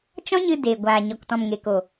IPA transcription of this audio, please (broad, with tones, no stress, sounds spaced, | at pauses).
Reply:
t͡ʃ ɔ̃˦ ɲ ɨ˧ d e˨ ɡʷ aː˨ ɲ ɔ˨ k t ɔ̃˨ m ŋ e˨ k o˨